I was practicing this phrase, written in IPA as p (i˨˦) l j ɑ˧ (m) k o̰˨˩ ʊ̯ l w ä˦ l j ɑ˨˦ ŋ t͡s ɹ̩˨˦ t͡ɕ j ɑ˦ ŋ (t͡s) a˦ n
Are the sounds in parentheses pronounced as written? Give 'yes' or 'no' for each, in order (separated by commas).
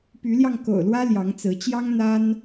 no, no, no